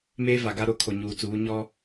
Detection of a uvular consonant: absent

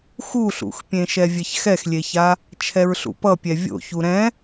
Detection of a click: absent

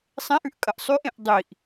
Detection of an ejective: present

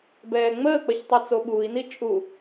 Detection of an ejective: present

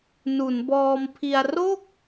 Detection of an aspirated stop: present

